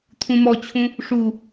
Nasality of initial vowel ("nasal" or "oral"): nasal